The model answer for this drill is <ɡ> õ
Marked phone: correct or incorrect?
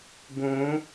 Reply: correct